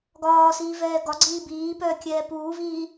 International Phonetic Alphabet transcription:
ɡ ɒː s iː v ɛː ɡ ɒ ɡ͡ǀ iː b iː p œː kʲ ɛː p uː v iː

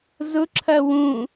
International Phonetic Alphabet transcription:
z ʊ ǁʰ ɐ w ũ

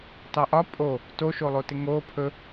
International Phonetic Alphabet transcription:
t ɑ ʔ ɒ pʼ o | t o ʃ o lˠ o t ɪ ŋ o pʰ ɵ

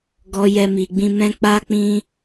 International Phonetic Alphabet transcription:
ɡ ɔ˧ j ɛ˦ m i˧ ɡ͡b ĩ˦ m ɛ̃˦ k͡p a˦ k͡p ĩ˦

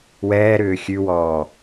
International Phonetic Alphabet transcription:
w ɛː ɾ ʏː xʲ ʉ w ɔː

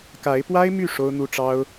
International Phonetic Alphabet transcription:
k a˧˥ ɪ̯ p w a˥ ɪ̯ m y˥˩ ʂ o˥ ʊ̯ n̪ u˥ ʈ͡ʂ ɑ˥ ʊ̯

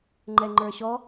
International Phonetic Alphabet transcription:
ŋ͡ǃ ɛ ŋ͡ǃ ə˞ ɕ ɔ

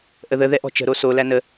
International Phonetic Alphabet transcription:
ʔ ə ð ə ð ɛ ʔ ɔ̤ t͡ʃ ə̤ ɾ o s o l æ n ə

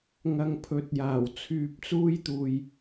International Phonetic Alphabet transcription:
ŋ ɐ˧ ŋ pʰ ɵ˨˥ t̚ j aː˨˩ w t͡sʰ yː˧ p̚ t͡s uː˥ j t̪ uː˨ j

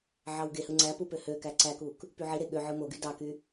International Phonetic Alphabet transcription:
ʕ ɑ w ɡ e h ɯ ŋ͡ǀ æ p u p ø h ø k æ ǀ æ k u k | p y ʕ i ɾ e ɠ ø ʕ ɯ m o ɡ y d ɑ k y

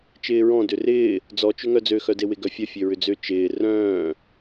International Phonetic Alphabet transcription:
t͡ʃ ɪː ɹ ɔ̃ d ʏ r ɪː | d͡z ɔ t͡ʃ ʏ ŋ œ d͡z ø x œ d e w ɪ ɡ œ fʲ œ fʲ ø ɹ ʏ d͡z ʏ t͡ʃ ɪː r œ̃ː

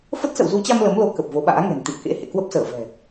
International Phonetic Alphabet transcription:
f ə˦˥ t̚ s ə̰˧˨ w z u˨˦ t͡ɕ a˧ m l ə˨˦ m l o˨˦ k ə˨˩ p̚ v o˨˦ ɓ a̰ː˧˥ ŋ ɛ̤˨˩ n t̪ ḭ˧˨ ə̯ k ḛ˧˥ h ḛ˧˨ k w ə˦˥ p̚ s əː˧˩ v ɛ̤˨˩

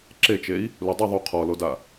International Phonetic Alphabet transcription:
ǁ e t͡ʃ e i̯ | l u dˤ i ðˤ u qʰ ɔ l o d a

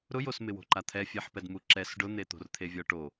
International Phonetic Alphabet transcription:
ɾ ʊ j o s m ɪ w o̤ ǃ a t̪ʰ ɛ fʲ ɛ ħ p ɛ d m u ǁ ɛ s ɖ ʊ n̪ e t̪ o̤ r t̪ʰ e vʲ ɔ ʈ o

